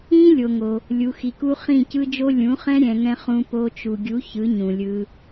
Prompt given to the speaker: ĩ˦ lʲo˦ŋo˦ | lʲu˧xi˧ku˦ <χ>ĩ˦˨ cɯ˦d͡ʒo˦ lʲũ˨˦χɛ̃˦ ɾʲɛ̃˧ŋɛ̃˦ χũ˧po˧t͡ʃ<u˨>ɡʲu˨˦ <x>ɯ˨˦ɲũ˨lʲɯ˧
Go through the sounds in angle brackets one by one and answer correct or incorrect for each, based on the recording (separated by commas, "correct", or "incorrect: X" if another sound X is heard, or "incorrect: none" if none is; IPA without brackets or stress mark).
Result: correct, correct, incorrect: ç